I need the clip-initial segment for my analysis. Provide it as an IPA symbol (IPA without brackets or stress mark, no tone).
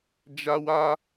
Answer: d͡ʒ